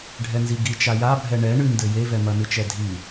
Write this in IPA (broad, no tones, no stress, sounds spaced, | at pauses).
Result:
ɖʱ ɛ n z i ɡ i t͡ʃ a j a bʱ ɛ ɳ ɛ ɳ ɨ n d ɘ j e v ɛ m ɐ n ɨ t͡ʃ ɛ dʱ i